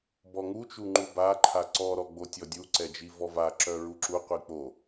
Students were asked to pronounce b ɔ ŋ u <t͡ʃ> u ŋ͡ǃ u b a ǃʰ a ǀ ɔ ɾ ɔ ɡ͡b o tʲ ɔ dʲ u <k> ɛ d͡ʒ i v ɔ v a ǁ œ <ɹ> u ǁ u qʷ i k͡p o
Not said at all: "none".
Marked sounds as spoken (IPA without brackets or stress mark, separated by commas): t͡ʃ, ǀ, ɹ